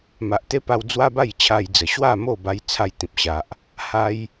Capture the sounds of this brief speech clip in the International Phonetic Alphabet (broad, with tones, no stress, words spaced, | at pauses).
ma˨ʔt̪e˦pa˧w d͡zwa˦ba˥˧jt͡ɕʰa˧jd͡zə˨˩ ɕwa˥˧ mo˥˧ ba˦jt͡sʰa˦jt̪ĩ˨p̚ɕa˨ʔ | ha˧j